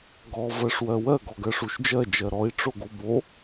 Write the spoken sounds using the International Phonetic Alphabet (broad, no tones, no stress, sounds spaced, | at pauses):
ɡ ɔ v ɜ ʂ w ɜ w ɜ ɡ ɔ ɡ ɜ ʂ u ʃ d͡ʒ ɜ d͡ʒ ɜ ɾ ɔ i̯ ʈ͡ʂ o ɡ o b o